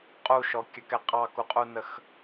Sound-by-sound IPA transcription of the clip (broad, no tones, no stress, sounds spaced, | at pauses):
qʼ u ʃ ɔ kʲ ə k ɛ qʼ ɑ k u qʼ u n ə x